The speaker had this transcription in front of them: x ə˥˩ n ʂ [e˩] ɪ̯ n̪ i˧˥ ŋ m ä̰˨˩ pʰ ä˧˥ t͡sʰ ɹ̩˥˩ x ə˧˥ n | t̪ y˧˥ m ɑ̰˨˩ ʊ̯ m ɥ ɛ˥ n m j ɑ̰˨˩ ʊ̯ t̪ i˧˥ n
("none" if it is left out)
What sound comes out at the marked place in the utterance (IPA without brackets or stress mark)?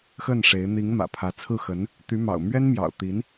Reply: e˧˥